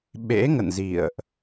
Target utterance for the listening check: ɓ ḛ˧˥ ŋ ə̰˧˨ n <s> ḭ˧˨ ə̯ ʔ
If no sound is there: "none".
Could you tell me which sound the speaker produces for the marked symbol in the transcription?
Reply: z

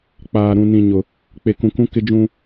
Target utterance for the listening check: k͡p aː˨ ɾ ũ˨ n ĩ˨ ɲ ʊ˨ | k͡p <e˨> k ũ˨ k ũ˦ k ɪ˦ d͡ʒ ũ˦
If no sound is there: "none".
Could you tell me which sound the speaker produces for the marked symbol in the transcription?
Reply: e˨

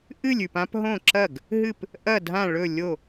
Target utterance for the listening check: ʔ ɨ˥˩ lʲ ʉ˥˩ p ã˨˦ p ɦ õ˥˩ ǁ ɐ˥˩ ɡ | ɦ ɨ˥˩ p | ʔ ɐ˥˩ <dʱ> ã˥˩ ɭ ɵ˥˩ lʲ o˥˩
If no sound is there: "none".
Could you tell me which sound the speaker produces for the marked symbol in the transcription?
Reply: dʱ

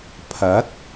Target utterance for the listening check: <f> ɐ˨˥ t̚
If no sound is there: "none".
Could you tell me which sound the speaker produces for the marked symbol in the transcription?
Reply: pʰ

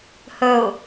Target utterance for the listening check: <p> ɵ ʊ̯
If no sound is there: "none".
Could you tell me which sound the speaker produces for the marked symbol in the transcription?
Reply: h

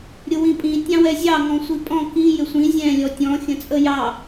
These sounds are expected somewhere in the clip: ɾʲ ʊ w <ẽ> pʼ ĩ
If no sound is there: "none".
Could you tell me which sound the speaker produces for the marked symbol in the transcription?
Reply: ĩ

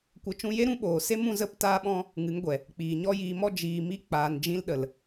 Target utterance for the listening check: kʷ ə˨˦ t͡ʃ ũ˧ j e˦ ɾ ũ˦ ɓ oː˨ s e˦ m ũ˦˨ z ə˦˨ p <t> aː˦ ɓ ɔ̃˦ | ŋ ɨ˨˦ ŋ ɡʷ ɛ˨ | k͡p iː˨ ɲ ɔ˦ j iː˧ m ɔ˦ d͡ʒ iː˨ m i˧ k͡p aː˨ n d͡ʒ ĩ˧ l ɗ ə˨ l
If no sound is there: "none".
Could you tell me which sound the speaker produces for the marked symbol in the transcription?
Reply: t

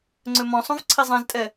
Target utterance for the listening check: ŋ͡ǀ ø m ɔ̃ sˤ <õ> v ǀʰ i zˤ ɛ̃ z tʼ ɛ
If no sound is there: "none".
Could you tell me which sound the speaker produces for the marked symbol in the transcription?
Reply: õ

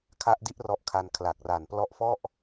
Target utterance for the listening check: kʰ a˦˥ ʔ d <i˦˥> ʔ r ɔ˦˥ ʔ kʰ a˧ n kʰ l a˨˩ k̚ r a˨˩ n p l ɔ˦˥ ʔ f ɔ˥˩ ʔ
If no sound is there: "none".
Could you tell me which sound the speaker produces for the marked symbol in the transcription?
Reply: i˦˥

